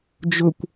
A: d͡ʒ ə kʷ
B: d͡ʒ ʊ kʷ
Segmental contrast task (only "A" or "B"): B